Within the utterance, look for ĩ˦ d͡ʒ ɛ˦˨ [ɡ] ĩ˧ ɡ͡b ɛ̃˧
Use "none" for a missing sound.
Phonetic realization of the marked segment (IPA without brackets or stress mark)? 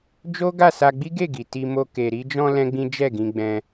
ɡ